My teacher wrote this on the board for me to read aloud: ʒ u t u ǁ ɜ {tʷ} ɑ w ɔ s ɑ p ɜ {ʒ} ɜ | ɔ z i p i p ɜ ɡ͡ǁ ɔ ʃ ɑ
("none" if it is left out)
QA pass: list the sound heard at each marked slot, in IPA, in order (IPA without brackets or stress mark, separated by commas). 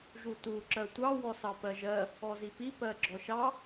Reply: tʷ, ʒ